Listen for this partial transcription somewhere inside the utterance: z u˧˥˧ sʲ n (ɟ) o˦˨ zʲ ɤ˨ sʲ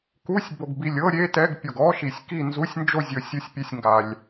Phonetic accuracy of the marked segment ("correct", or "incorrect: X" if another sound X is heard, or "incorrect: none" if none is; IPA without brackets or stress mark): incorrect: d͡ʒ